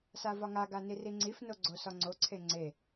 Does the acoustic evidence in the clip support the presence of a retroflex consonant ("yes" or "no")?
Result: no